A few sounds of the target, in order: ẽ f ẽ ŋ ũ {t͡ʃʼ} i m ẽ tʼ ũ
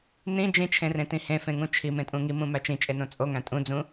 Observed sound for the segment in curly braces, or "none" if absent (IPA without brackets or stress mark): t͡ʃʰ